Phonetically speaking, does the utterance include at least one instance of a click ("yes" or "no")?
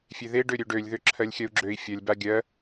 yes